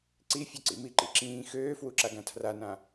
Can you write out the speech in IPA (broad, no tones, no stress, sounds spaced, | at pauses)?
ǀ i fʲ ø ǀ ḭ m i ǃ ḭ ǁ ĩː x øː f w u ǁ a ɡ ã tʰ r a n ã